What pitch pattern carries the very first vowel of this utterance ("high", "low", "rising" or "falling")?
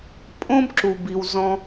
high